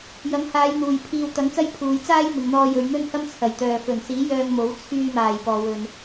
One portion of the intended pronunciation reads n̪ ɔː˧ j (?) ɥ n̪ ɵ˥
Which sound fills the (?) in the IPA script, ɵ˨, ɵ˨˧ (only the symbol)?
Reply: ɵ˨˧